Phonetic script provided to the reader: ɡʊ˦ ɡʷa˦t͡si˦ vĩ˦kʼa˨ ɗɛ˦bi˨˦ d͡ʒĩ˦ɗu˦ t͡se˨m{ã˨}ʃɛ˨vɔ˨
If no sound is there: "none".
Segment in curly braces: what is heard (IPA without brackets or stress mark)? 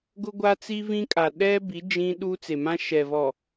ã˦